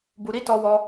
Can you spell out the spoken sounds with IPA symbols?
b u˧ ɾ i˦ t ɔ˦ w ɔ˦

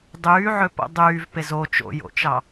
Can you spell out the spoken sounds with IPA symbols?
dˤ yː ʕ ø p o̰ dˤ yː v p e z o t͡ʃ o̰ j o̰ t͡ʃ ɑ

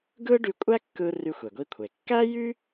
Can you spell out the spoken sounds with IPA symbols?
ɡ ɯ˥ ɖ y˧ kʷʼ æ˥ kː ɯ˧ r y˧ xʷ e˩ ɡʷ i˧ kʷʰ e˩ kː æ˥ j y˥

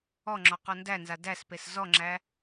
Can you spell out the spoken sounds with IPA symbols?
ɔ ŋ͡ǁ ɔ q ɔ n d æ n z a d æ s p e s z ɔ ŋ͡ǁ æ

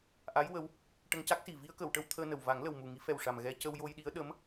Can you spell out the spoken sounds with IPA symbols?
ʔ a˧˥ j w ə˧˥ w | ʈ ə˧ ŋ c a˦˥ k̚ s i˨˩ v i˧ ə̯ k ə˨˩˨ w ʈ ə˧ w t̪ʰ əː˧ n ə˨˩ w v a˨˩˦ ŋ l ə˨˩ w m u˨˩ ŋ i˨˩˦ f ɛ˨˩ w ʂ a˨˩ m ɣ ɛ˧ c ə˧ w j o˧ j ɗ i˧˥ ə̯ ɗ ə˧˥ m

